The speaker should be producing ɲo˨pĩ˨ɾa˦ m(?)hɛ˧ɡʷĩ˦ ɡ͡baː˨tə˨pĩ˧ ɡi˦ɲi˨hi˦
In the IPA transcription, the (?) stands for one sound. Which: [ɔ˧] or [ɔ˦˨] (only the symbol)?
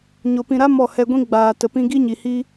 ɔ˦˨